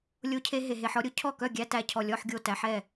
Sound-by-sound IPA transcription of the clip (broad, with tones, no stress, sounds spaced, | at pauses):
lʲ o˧ cʰ e˧ ɦ e˩ ɦ e˩ ħ ɔ˧ ɾʲ o˧ cʰ ɔ˥˩ k œ˥˩ ɡʲ æ˧˥˧ t æ˧ cʰ ɔ˧˩ lʲ ɔ˧˥˧ ħ ɡʲ o˥˩ t æ˧ ħ ɛ˥˩